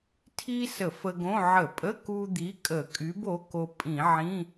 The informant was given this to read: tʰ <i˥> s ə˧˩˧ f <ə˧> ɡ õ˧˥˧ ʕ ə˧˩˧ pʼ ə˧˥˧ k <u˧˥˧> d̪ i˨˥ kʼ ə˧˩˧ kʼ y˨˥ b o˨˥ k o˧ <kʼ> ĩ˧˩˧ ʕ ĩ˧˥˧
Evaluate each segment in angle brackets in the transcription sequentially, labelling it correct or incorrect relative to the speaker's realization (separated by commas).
correct, correct, incorrect, incorrect